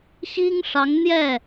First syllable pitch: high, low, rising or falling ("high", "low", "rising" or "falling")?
high